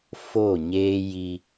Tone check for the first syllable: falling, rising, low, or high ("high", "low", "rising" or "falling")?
falling